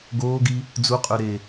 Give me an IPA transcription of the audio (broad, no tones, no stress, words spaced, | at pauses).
ɡoːɡi | d͡zuqʼø ɾe